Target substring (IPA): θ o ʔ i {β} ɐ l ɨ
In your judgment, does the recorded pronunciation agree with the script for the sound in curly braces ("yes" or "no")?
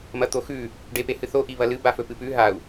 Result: yes